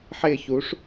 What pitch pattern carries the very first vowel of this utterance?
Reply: falling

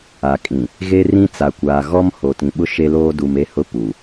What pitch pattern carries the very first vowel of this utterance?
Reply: low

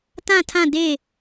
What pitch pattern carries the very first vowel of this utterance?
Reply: falling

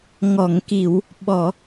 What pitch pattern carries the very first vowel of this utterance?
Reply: low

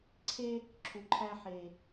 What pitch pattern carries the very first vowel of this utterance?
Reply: high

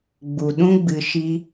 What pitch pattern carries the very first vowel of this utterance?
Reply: low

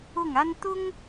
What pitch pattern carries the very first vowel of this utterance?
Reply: falling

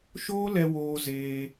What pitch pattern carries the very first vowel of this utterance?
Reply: high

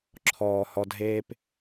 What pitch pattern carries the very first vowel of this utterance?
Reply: low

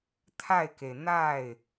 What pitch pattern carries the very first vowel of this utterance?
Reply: falling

